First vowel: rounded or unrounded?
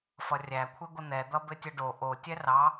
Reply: unrounded